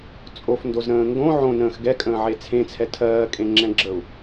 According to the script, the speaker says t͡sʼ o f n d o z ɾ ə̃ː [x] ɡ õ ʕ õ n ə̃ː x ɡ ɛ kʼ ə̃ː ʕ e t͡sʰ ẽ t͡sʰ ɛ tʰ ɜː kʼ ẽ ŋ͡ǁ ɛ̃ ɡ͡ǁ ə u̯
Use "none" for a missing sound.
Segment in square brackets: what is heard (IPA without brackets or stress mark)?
ŋ